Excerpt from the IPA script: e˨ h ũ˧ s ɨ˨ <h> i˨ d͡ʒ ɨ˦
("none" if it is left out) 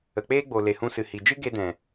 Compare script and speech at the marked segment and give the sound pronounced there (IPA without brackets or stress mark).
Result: h